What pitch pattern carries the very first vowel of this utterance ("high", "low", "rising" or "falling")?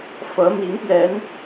rising